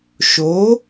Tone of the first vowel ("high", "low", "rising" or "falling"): rising